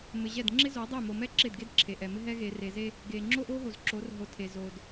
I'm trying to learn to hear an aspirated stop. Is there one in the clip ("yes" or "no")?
yes